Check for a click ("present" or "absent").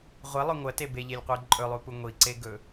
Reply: present